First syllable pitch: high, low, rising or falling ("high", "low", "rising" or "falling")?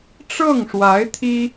falling